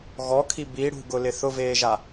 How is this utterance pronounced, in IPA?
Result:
ɣɔkʰi bi ɽṳɡʊlɪ θʊveːʒa

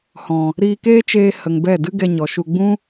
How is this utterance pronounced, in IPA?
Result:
hɔ̃˨ | ɾiː˧keː˦t͡ʃeː˧ hə˨ŋbɛ˦˨ dɨ˦ɡɛ˧ɲɔ˨ʃu˧ ɡ͡bũ˦

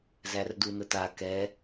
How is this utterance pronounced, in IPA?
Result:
zærdunəta kɛ

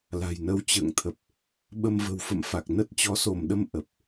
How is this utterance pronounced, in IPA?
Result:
la̤˨˩jnə˧w t͡ɕə̰ː˧˨ŋt̪ʰə˨˩p̚ | ɓə˧mvə̤˨˩wfə̰˧˨m fa˨˩k̚ nə˦˥t̚t͡ɕɔ˨˦so˧˩mɗə˧m ʔə˨˩p̚

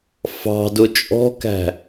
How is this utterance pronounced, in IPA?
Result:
fɑ̤dʊ t͡ʃʼɔ̤kæ̤

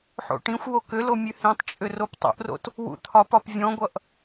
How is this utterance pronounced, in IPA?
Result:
ħo̰ʈĩxʷwo kʏlo mʲʉhĩtˤt͡ʃʼʏ roptˤṵʔro̰t | wṵt̪ʰɒpɒp vʲɔ̃ɡʷʌʔ

